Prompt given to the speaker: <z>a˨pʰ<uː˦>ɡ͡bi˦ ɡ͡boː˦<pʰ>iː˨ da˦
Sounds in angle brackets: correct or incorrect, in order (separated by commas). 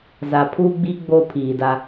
correct, correct, correct